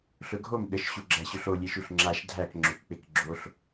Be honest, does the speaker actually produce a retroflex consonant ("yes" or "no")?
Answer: no